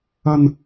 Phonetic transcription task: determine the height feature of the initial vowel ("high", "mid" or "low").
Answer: low